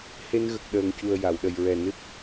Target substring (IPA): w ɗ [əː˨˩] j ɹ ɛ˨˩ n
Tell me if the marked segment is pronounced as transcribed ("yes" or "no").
no